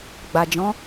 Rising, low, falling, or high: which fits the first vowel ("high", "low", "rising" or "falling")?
low